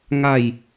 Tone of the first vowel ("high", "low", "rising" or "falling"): falling